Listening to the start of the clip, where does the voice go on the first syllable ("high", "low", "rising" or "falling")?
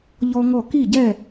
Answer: high